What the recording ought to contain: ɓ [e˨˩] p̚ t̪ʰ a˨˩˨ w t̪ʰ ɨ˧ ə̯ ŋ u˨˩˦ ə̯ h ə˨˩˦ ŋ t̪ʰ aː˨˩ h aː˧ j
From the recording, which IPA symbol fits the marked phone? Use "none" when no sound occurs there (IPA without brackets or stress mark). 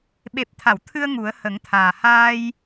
e˨˩